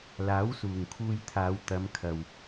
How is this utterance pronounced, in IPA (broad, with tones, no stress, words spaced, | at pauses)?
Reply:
laː˨˥wsuː˨˩ŋkʰuː˧jt̪ʰaː˨˧w t̪ɐ˨˧mkʰɐ˨w